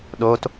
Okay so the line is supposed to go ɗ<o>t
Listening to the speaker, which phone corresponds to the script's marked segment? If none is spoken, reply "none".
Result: o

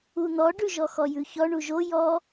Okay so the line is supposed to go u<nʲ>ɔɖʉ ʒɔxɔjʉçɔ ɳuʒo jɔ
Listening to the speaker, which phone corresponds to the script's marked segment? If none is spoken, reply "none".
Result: n̪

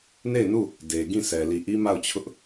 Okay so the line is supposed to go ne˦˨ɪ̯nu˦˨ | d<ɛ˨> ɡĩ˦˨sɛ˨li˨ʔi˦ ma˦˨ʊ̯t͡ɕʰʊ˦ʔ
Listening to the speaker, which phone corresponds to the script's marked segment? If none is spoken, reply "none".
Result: e˨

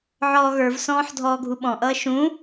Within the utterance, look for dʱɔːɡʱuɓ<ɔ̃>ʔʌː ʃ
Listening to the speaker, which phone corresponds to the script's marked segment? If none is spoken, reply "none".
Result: ɔ̃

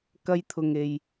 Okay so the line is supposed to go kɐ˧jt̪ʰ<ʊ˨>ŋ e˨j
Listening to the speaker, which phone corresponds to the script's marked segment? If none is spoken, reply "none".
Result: ʊ˨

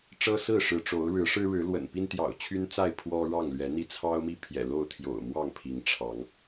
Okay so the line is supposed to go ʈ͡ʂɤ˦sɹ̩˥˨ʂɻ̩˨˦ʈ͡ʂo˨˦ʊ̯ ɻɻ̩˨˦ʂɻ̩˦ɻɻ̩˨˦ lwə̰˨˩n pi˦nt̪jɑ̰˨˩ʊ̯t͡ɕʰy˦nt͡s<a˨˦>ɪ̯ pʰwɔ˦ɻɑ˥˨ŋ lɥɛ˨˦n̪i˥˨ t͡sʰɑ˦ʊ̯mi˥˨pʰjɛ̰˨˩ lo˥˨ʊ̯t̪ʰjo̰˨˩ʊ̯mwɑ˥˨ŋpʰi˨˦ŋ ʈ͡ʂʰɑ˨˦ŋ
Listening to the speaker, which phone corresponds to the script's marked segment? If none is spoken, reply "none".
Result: a˥˨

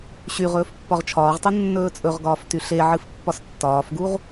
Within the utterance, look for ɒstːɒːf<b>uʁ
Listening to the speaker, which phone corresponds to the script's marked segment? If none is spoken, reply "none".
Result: ɡ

